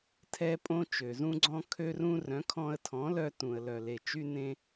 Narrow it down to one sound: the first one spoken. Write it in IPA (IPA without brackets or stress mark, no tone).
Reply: tʰ